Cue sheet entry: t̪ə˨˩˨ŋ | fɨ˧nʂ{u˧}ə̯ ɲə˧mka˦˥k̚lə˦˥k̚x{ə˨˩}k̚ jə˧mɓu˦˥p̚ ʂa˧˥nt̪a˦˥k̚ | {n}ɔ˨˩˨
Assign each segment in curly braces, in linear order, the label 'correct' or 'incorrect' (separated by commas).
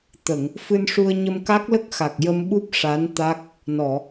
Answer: correct, incorrect, correct